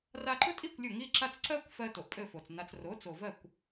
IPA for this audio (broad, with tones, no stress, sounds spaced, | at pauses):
r a˧ ǃ ʊ˥ tʼ i˥˩ kʷ lʲ ʊ˥˩ ŋ i˥ ǁ a˥ t͡s ǀ ɜ˥ kʷ f ɜ˧ t o˩ ʔ pʼ ɘ˥˩ f o˩ t͡s n a˧ t͡s r o˩˥ t͡s o˩ v ɜ˥˩ kʷ